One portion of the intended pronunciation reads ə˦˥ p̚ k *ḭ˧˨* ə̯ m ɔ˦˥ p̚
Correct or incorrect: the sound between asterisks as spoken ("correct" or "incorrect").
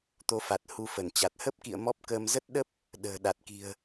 correct